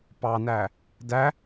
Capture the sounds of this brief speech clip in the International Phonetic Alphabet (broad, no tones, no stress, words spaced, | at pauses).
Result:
pɑnæ | dæ